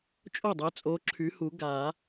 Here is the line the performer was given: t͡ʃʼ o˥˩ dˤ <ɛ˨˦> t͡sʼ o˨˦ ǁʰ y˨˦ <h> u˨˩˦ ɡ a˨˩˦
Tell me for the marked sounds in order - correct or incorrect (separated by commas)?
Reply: correct, correct